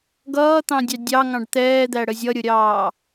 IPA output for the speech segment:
ɡ ʌː t̪ ɑ̃ dʲ ɑ dʲ ɑ ŋ ɑ̃ ɖ t̪ ɛː d̪ æ ɽ ə zʲ ʌ ɾʲ ʊ ɾʲ ɑː

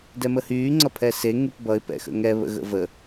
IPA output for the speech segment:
d ɛ m ə h yː ŋ͡ǀ ʌ pʰ ɛ s e ŋ y p b ʌ ɪ̯ p ɛ̰ x ə̰ ŋ ɛ β ə̰ ɣ ə̰ v ə

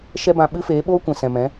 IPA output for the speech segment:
ʃ ɛ˦ b ã˧ ɓ ɨ˦ f eː˨˦ ɓ oː˦ kʷ ɛ̃˨ s ɛ̃˨ m ɛ̃˨˦

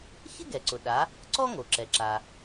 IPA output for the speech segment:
ç ɪ˥ ɡ ɛ˩ ǀ ʊ˩ ɗ a˩˧ | ǀ ɔ˥ ŋ o˩ ǁ ɛ˩ ǁ a˩

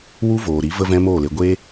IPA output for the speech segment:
w u˦ v oː˨ ɾ i˨˦ v ə˦ v ɛ̃˦ m oː˦˨ l e˧ ɡʷ e˦

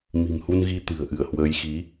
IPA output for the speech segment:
m i̤˨˩ m h u˧ n ɣ i˧ t̪ ɨ̤˨˩ ə̯ ʔ ɨ˧˩ ə̯ h w əː˨˦ j x i˨˦

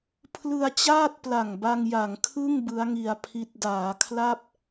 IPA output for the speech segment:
pʰ l ɯ˧ a̯ t͡ɕ aː˥˩ t̚ p l a˨˩ ŋ b a˧ ŋ j a˩˦ ŋ kʰ ɯ˥˩ ŋ b ɯ˦˥ a̯ ŋ i˧ a̯ pʰ i˦˥ t̚ d aː˩˦ kʰ l a˥˩ p̚

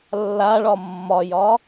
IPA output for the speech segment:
lː a ɭ ɒ mː ɒ j ɒ

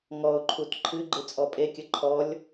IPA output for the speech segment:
ŋ ɔ ʊ̯ ǃʰ u t ǃʰ ɨ ɡ͡ǃ ɨ t͡sʼ ɔ pʼ e kʲ ə ǃʰ ɔ lʲ

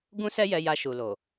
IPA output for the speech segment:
ɡ ũ˦ s ɛ˦ j ɛ˧ j a˧ ʃ u˨ l o˨

